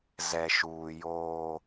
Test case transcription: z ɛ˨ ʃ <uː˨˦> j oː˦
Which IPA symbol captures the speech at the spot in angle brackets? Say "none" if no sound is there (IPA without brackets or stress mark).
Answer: uː˨